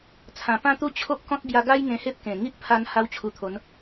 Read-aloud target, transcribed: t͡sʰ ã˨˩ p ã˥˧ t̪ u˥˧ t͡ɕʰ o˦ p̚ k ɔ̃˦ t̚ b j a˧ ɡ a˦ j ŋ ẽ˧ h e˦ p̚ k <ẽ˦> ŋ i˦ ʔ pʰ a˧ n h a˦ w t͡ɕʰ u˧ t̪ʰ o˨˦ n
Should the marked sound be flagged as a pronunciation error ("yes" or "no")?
yes